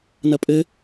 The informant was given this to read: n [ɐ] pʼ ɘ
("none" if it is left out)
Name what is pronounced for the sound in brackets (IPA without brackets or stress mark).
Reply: ɐ